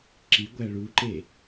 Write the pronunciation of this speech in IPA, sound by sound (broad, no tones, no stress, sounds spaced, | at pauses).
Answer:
ǁ i ɡʷ æ ɭ u ǃ e